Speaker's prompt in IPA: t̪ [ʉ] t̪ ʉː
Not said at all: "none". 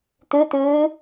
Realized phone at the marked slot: ʉ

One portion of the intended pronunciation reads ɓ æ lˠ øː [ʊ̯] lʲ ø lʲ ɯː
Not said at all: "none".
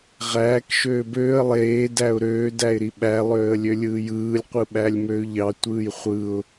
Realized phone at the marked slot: ə̯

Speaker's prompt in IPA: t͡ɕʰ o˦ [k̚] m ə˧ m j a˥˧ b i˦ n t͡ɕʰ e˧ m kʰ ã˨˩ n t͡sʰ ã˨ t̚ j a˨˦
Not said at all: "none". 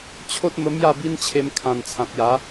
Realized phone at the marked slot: t̚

